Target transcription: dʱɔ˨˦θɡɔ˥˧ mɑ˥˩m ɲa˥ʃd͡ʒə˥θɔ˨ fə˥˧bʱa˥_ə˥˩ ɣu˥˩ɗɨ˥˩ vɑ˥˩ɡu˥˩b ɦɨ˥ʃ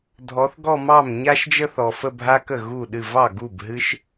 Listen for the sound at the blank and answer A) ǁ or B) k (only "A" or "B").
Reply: B